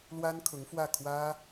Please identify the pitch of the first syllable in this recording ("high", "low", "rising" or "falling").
high